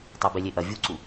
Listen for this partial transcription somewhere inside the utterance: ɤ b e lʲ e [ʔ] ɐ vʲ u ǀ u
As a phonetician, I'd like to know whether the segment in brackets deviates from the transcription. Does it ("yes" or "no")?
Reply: no